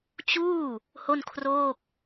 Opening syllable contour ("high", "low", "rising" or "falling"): falling